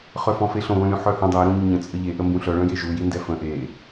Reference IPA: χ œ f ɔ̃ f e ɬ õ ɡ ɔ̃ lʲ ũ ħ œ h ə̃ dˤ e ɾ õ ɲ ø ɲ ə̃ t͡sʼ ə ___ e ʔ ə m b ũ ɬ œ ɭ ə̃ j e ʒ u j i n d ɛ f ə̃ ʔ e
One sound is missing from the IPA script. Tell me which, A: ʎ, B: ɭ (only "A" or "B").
A